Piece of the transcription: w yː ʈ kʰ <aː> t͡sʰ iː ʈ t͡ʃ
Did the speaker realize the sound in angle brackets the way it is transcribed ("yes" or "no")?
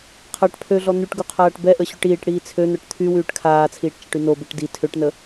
yes